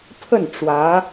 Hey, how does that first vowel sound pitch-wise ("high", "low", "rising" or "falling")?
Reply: falling